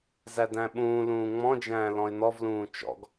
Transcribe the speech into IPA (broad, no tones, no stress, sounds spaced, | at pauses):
z æ d æ̃ ɓ ũː l ũː ŋ͡m ɔ̃ d͡ʒ æ̃ː l ɔ̃ ɪ̯ n ɔ v l ũː t͡ʃ ɔ̰ ɡ